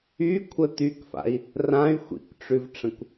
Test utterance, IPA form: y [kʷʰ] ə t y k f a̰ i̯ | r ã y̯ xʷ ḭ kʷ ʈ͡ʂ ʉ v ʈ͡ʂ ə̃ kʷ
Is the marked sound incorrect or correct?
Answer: correct